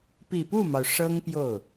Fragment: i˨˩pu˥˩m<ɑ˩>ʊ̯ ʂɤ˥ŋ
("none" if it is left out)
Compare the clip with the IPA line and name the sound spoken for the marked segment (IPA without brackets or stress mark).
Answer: ɑ˩